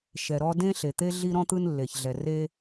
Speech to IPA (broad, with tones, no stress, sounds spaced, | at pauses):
ʃ ɛ˩ ɾ ɔ˦ d ẽ˥ ɬ e˩ t̪ e˥ ɮ i˦ ɾ ɔ̃˥ t̪ ɯ˦ n lː e˩ ç ɮ ɛ˩ r e˦